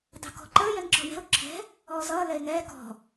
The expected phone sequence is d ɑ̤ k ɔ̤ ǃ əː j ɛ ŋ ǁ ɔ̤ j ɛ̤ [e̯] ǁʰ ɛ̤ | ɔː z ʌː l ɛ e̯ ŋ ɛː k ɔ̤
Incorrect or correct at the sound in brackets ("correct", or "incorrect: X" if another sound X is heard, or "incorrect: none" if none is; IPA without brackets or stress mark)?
incorrect: o̯